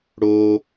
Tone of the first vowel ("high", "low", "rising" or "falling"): low